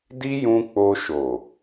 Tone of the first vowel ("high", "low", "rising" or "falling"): high